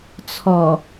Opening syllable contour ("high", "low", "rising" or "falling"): low